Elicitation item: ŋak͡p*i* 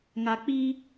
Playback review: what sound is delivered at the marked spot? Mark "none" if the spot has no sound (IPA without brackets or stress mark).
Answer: i